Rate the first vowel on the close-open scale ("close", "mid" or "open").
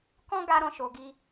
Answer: mid